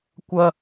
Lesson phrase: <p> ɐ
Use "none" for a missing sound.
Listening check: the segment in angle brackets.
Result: kʷ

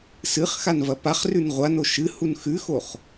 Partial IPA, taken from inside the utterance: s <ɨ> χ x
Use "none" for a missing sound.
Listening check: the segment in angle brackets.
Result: ɨ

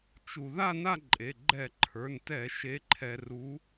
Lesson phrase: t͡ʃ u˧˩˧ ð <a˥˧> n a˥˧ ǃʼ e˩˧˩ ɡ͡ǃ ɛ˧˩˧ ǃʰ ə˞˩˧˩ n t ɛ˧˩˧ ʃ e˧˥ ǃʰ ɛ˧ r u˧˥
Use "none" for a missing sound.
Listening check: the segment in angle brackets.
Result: a˥˧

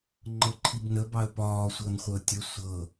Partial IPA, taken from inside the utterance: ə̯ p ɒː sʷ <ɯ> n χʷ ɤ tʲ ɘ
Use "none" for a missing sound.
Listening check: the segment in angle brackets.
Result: ɤ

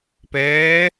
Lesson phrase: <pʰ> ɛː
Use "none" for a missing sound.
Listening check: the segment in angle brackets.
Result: p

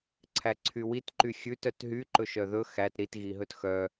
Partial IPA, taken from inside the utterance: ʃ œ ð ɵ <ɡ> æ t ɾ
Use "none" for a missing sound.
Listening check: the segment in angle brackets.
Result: x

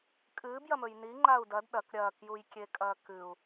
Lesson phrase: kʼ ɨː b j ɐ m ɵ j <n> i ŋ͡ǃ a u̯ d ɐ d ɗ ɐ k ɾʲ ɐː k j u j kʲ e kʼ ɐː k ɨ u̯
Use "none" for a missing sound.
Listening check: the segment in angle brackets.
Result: n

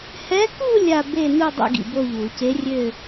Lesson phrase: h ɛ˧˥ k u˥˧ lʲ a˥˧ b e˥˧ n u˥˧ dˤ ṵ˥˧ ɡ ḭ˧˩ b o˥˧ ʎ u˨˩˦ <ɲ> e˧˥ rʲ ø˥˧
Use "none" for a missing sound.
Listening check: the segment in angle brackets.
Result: c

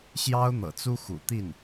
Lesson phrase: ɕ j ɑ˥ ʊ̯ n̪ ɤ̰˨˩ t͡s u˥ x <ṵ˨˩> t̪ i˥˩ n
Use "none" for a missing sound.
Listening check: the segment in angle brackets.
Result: ṵ˨˩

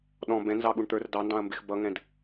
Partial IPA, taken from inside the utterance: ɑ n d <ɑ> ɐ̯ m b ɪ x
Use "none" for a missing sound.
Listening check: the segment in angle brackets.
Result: ɑ̃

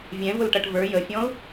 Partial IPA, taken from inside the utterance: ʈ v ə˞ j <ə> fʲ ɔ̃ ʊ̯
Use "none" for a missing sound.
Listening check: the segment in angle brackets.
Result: ə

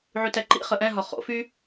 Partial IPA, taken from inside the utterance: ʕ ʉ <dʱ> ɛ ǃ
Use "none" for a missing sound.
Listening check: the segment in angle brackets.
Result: t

